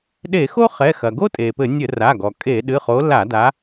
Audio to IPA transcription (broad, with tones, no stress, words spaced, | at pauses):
ɗe˧˩˧xo˥ χɛ˩˧˩xɐ˩ɡo˥ tʼe˩pɘ˧˩˧ nʲɘ˧˩˧ra˩˧˩ɡɔ˩ kʼe˧˩˧ ɗɨ˩˧˩χo˨˦ la˧˩˧da˨˦